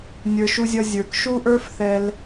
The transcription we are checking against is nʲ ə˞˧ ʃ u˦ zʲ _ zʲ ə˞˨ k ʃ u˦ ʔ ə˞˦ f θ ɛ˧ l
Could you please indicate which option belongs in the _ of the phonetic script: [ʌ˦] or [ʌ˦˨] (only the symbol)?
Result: ʌ˦